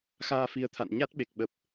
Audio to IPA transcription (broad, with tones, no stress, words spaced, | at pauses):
xaː˧fi˨˦ə̯t̪ʰa̰˧˨n ɲa˦˥t̚ɓe˨˩k̚ɓə˨˩p̚